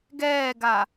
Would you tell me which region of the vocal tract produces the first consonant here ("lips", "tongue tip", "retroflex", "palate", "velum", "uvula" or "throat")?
velum